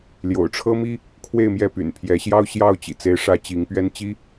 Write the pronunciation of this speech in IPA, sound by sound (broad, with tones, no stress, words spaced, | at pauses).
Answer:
ljo̰˨˩ʊ̯ʈ͡ʂʰɤ˦mi˦ | kʰwe˥˨ɪ̯mjɛ˥˨py̰˨˩n pʰjɛ˨˦ɕjɑ˦ʊ̯ ɕjɑ˥˨ʊ̯t͡ɕḭ˨˩ t͡se˨˦ɪ̯ʂä˨˦ t͡ɕi˨˦ŋpɥɛ˦n t͡ɕi˦